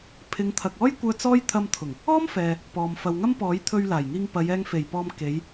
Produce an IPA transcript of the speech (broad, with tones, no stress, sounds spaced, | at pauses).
pʰ ɪ˨˧ ŋ t̪ʰ ɐ˨ k̚ ɔː˥ j kʷ œː˧ t͡s ɔː˥ j t̪ʰ ɐ˧ m t̪ʰ ʊ˨˩ ŋ | ɔː˥ m f ɛː˨ | p ɔː˨ m f ɐ˨ w ŋ ɐ˥ m p ɔː˨˥ j t̪ʰ ɵ˧ ɥ l aː˨˩ j ŋ iː˧ ŋ p ɐ˨˧ j ɛː˧ ŋ f e˨˩ j p ɔː˧ m k e˨˧ j